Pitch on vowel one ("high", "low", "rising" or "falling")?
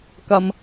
low